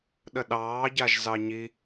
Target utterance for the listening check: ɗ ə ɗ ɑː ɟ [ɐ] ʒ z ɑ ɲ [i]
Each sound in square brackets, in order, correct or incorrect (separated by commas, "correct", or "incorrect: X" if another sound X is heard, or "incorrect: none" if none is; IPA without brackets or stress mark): incorrect: a, correct